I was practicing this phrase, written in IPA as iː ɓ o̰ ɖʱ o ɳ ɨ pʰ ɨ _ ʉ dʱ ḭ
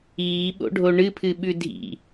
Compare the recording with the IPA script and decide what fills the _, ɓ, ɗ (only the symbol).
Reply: ɓ